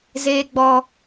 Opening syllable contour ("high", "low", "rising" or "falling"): high